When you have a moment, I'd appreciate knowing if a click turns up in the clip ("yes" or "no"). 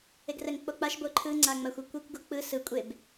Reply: yes